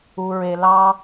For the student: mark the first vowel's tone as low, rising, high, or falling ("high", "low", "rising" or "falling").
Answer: low